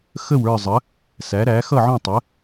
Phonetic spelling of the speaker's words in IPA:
x ə˥˨ w ə˞˥˨ zˤ ə˩˥ | s æ˩˥ ɾ æ˩˥ x ʌ˥˨ ʕ ɔ̃˥˨ tˤ ə˩˥

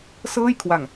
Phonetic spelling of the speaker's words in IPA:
s ɤː˥˩ j kʰ w a˨˩ ŋ

